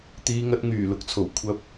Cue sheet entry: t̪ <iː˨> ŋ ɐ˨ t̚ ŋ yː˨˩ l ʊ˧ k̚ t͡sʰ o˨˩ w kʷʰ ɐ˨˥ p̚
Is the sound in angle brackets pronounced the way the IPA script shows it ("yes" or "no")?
yes